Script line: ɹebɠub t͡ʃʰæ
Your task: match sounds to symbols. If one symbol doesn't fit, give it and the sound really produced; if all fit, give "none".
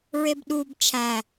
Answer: ɠ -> ɗ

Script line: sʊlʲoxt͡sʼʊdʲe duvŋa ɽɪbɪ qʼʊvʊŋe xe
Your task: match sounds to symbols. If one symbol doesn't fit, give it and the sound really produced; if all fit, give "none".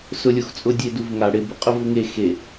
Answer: none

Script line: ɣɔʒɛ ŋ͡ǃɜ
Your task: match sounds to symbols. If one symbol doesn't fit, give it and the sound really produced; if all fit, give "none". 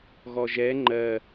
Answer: none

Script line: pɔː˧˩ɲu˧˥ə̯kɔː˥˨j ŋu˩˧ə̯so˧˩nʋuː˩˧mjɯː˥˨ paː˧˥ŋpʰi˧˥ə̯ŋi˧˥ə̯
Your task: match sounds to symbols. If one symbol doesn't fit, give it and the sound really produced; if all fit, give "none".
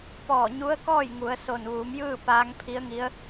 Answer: none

